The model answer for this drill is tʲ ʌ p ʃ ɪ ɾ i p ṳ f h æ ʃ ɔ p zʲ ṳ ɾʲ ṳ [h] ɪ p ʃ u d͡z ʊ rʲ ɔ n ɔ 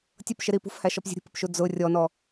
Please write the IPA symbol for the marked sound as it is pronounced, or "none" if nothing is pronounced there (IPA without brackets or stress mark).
p